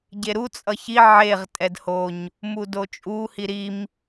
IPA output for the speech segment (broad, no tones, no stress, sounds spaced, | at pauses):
ɟ e ɾ u t͡sʼ ʌ ç i ʕ e ʁ tʼ ɛ d h o ɲ | m u d o t͡ʃʼ u h i ɾ i m